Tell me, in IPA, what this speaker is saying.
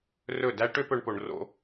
rɵ˦˨dæ˦ ʈø˦pɵ˧ɳpo˨ɳ ro̰˧

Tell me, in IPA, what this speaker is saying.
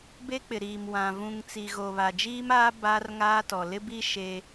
be˦k͡pɪ˨ɾiː˨m wã˨vũ˨ŋ t͡si˨ɣo˨βa˨ d͡ʒiː˦maː˦ ba˦rŋaː˦tɔ˨ lɪ˦bi˦ ʃe˦

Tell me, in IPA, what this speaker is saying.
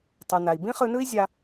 tˤu˩na˩i̯ bĩ˥χɯ˧nɯ˥i̯ zʲa˧

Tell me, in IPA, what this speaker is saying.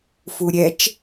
fuɾʲɛt͡ʃ

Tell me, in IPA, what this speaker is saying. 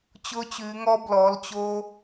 t͡ɕʊː˥t͡ɕʉː˧˥ŋɔ˥ blɔ˧˥lt͡ɕo˥

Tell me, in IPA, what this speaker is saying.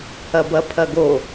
hɐbɐpʰɐɡo

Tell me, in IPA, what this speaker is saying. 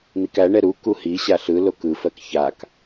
n̪ikæɳɛ ɾu kuhiɕa ɬɯlok ɯfɜk çak

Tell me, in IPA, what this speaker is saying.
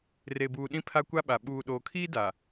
re˨buː˨ ɗĩ˦pʰa˦kʷa˦ɓa˨ ɓuː˨ɗoː˨kʰiː˦ da˨

